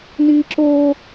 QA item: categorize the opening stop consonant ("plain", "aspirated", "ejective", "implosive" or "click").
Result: click